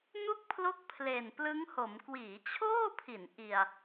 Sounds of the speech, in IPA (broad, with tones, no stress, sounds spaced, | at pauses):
n u˥˩ k̚ pʰ l o˦˥ k̚ pʰ l e˨˩ n p l ɯ˦˥ ŋ h o˩˦ m k w iː˩˦ t͡ɕʰ oː˥˩ pʰ i˩˦ n ʔ i˨˩ a̯